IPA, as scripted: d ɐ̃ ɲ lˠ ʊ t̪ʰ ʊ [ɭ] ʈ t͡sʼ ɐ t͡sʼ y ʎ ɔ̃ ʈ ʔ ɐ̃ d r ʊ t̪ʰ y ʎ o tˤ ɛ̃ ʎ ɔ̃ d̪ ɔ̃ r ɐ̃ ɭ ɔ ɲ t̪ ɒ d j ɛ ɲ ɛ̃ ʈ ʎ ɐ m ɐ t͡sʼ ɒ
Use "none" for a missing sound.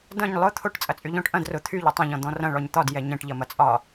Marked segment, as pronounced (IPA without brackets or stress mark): none